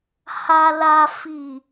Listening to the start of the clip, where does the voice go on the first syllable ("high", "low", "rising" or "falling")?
low